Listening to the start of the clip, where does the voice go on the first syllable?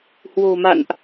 low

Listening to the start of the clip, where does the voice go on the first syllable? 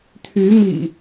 rising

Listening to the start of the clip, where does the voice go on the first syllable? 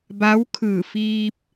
rising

